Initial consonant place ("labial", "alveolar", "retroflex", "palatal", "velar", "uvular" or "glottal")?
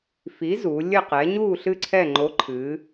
labial